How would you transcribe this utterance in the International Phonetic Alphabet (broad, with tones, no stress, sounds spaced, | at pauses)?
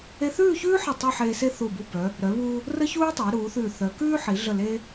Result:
e˧ θ ʉː˥˧ ç ʉː˥ ħ ɘ˧˩ tˤ e˥˧ ħ eː˧ s e˥ θ u˧˩ b u˧ b œ˩˧ | ɾ œ˩˧ β uː˧ | r ə˥ ç uː˥ tˤ e˩˧ ɾ uː˩˧ θ ʉː˧˩ θ œ˩˧ k ʉː˥ ħ i˩˧ ɮ ə˧˩ l e˧